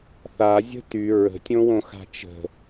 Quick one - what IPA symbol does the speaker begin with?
θ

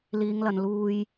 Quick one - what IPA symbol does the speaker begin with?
l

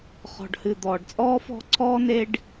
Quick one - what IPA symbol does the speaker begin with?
χ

